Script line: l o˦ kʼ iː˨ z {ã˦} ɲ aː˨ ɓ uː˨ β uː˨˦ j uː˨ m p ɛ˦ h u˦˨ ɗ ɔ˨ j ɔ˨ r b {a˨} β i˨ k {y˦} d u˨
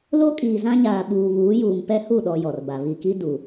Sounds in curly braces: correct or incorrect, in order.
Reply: correct, correct, incorrect: i˦

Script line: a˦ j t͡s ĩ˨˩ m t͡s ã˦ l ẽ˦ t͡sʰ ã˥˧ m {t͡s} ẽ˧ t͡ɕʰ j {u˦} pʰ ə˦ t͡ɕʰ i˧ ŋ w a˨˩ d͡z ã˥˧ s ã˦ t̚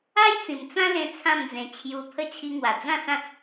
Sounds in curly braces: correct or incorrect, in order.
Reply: incorrect: d͡z, incorrect: u˧

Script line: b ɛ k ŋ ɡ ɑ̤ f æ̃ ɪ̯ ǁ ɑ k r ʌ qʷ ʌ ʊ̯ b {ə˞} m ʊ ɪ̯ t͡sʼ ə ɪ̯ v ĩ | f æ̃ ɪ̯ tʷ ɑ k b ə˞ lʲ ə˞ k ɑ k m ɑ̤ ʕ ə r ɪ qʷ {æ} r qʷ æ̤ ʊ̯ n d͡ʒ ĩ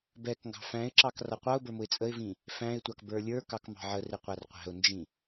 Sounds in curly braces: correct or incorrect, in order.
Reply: correct, correct

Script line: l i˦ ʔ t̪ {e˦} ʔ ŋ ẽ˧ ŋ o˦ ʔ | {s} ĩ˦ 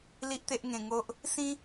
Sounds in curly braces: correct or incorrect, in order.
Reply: correct, correct

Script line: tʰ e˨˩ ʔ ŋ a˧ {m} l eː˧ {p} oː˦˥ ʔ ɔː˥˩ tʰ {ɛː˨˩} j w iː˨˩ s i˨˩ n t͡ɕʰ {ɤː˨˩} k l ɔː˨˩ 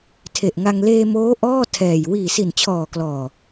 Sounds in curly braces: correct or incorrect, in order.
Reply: incorrect: ŋ, incorrect: m, correct, incorrect: ɔː˨˩

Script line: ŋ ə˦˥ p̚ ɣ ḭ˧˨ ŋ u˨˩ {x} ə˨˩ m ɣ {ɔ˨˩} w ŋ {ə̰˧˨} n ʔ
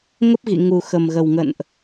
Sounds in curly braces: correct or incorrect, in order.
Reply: correct, incorrect: ə˨˩, correct

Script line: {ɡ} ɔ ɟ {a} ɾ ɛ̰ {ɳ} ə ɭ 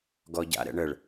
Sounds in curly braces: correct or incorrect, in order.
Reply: correct, incorrect: a̰, correct

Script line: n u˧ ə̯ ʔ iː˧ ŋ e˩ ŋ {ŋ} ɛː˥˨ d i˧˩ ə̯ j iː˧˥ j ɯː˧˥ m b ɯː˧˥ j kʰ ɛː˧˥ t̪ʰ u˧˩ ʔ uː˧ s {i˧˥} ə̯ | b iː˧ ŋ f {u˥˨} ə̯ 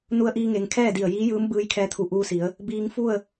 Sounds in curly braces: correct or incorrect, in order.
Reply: incorrect: kʰ, incorrect: i˩˧, correct

